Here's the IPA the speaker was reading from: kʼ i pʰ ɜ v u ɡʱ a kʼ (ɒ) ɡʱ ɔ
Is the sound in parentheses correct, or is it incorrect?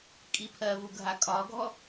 correct